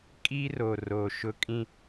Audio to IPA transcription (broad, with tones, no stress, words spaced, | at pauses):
kʼi˦ro˨ro˨ ʃʊ˦kʼĩ˦